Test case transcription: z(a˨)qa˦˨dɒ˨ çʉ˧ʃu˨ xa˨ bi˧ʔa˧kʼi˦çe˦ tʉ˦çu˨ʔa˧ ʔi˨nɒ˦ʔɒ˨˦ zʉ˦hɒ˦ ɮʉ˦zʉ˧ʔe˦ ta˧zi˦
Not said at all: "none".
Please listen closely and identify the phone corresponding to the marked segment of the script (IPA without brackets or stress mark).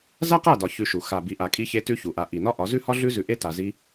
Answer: a˦